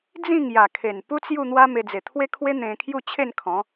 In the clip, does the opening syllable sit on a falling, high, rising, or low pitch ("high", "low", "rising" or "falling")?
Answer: falling